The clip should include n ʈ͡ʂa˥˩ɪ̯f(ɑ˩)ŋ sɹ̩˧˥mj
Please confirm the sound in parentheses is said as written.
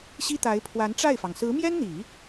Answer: yes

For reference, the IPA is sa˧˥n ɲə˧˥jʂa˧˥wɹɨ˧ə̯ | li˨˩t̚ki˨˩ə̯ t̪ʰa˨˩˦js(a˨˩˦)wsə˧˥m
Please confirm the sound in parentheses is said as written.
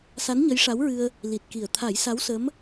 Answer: no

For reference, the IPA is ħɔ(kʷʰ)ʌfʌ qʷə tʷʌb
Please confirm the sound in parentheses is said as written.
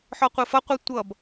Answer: no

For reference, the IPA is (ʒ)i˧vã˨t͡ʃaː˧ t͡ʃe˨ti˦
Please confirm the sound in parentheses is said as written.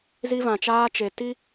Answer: no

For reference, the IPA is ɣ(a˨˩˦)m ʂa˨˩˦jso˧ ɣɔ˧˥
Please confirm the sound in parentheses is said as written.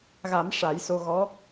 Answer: yes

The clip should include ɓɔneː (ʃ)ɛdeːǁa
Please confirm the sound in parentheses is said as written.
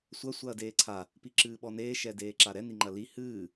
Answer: yes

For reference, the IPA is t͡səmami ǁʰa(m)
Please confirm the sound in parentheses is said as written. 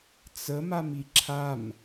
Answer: yes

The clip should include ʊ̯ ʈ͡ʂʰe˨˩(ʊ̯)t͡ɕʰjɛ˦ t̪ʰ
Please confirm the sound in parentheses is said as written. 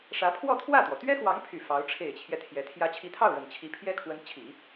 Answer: no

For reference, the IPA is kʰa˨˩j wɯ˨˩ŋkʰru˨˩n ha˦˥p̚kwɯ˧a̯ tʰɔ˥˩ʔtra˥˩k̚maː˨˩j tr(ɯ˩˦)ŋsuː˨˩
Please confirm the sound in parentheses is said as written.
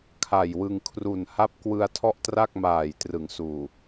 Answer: yes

